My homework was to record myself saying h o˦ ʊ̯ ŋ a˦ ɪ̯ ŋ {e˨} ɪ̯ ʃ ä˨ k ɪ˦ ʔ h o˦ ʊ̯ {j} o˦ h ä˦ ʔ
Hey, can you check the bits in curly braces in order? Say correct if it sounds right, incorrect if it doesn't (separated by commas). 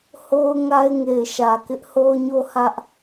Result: correct, incorrect